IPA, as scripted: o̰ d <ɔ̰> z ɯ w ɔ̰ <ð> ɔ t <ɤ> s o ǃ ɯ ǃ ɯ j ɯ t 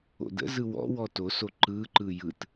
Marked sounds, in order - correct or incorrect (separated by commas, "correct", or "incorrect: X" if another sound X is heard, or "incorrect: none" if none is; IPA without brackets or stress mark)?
incorrect: ə̰, incorrect: w, incorrect: o